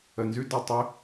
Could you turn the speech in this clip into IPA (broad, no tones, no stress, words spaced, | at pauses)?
ənzʉ də tˤʏ